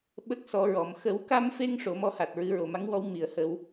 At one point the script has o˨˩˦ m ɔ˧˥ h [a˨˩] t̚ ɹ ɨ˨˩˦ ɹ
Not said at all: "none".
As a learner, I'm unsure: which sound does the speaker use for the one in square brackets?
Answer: a˨˩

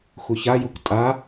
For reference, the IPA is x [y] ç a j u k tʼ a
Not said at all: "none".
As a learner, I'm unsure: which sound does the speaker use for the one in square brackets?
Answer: u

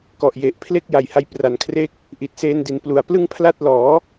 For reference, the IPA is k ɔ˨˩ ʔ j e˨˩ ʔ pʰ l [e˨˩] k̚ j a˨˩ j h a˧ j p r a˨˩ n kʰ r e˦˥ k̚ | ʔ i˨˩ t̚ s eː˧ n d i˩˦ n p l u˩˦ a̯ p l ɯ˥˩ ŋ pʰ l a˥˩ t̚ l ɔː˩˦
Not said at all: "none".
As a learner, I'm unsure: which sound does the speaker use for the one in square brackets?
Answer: e˥˩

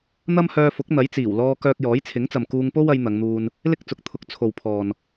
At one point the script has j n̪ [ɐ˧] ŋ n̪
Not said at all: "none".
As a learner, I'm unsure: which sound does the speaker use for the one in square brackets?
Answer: ɐ˨˧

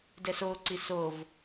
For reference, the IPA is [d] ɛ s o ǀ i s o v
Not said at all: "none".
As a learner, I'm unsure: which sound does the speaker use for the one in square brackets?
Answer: d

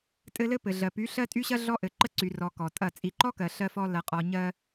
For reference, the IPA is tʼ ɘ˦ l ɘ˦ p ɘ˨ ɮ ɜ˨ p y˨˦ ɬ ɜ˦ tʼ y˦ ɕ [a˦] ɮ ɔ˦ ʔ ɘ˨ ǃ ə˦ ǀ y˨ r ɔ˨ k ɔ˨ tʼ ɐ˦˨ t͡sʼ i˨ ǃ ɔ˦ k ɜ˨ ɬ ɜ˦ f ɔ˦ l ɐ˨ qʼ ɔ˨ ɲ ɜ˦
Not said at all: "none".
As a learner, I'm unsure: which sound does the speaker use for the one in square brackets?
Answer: ɐ˦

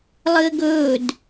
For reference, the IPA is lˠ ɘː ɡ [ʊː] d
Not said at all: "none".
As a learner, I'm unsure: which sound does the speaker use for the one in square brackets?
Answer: ɵː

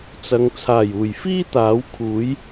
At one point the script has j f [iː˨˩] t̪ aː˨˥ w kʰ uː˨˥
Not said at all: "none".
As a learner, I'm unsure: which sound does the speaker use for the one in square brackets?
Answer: iː˥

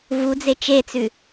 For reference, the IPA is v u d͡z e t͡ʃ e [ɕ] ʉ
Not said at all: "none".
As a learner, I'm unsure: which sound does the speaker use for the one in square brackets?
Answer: t͡s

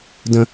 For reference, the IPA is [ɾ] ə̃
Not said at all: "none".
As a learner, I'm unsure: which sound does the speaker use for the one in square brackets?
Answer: d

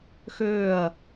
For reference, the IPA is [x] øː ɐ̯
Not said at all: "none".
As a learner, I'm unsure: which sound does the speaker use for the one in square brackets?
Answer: x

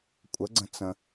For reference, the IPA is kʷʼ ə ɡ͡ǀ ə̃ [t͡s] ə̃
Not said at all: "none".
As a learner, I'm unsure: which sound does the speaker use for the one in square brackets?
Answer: t͡s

